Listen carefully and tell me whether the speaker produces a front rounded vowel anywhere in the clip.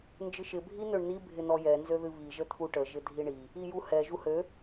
yes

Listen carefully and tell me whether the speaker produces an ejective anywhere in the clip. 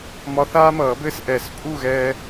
yes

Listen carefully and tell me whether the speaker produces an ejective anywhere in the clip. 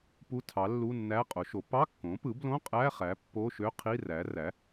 yes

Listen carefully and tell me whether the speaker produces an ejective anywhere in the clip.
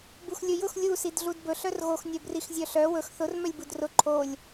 no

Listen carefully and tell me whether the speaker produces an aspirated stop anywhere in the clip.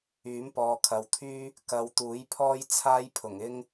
yes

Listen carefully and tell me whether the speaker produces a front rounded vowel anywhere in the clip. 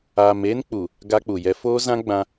no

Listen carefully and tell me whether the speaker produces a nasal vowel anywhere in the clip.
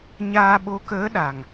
no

